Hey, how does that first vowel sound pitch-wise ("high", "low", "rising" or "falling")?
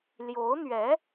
rising